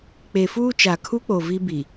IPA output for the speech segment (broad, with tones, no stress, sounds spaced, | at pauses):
k͡p e˨ f uː˦ t͡ʃ a˨ kʰ u˦ k͡p o˨ v i˦ b i˨